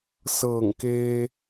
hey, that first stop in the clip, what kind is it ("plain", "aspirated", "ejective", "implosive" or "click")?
plain